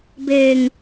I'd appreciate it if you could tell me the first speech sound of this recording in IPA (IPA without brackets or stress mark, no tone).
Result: b